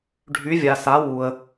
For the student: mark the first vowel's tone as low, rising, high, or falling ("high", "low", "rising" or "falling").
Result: rising